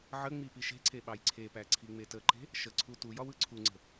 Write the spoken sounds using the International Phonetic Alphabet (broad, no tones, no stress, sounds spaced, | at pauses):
ʕ ə ŋ͡m i p i ʃ e̤ ǀ e ɓ ɑ j ǀʰ e p æ ǀʰ i ŋ͡m e t ə ǃ e̤ | ʃ ə ǀʰ u t u j ɒ w ɯ ǀʰ u ŋ͡ǀ ə̤